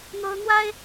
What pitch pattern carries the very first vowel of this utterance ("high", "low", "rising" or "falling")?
high